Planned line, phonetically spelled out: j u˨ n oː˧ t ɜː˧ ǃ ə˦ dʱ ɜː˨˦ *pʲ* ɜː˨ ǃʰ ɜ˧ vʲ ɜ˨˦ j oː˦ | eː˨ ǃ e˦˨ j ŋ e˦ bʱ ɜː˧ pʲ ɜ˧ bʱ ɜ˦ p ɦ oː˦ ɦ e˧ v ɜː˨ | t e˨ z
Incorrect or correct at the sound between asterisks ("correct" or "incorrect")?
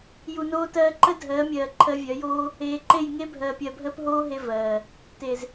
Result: incorrect